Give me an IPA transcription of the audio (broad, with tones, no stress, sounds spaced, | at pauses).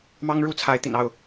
m ɑ˦ ŋ ɻ u˥˨ t͡sʰ a˨˦ ɪ̯ t̪ ḭ˨˩ n ɑ˥˨ ʊ̯